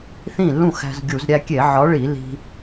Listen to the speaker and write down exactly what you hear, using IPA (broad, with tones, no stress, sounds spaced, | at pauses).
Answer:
θ ĩ˥˩ lː ũ˥˩ x æ̤˧ z ɡʲ u˧˩˧ z ɾʲ æ˧ kʲ e˧˩˧ ʕ ɒ˨˥ ɭ i˧˩˧ l i̤˧